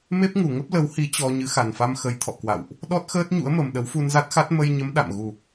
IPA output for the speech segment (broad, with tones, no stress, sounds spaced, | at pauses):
m e˦˥ p̚ ŋ u˨˩ ŋ ə˦˥ p̚ l ə˨˦ w h i˨˦ t͡ɕ ɔ˧ ɲ ɨ˨˦ x a˨˩ n f a˧ m x ə˨˦ j t̪ʰ ɔ̰˧˨ k w a̰˧˨ w ʔ | ɗ ɔ˦˥ t̚ x əː˦˥ t̚ ɲ ṵ˧˥ ə̯ m ə˨˩ m ɗ ə˨˦ w f u˧ n z a˦˥ t̚ x a˦˥ t̚ m ə˧ j ɲ ə˨˦ m ɗ a̰˧˨ m ɣ u˨˩